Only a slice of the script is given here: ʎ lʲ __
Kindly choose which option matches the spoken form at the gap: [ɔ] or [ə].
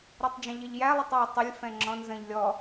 ɔ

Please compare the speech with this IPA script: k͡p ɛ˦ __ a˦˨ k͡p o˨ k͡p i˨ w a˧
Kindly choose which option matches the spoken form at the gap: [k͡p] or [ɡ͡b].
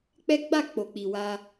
ɡ͡b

